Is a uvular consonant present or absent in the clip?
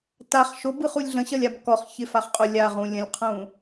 present